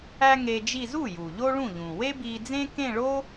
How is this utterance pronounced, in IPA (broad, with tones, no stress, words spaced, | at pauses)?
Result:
æ˥ŋe˧d͡ʒi˥˧ zu˥˩ju˩ ʎo˥ɭũ˥˩ʎũ˩ we˥bi˧d͡zẽ˥ kẽ˥˧ ɭo˥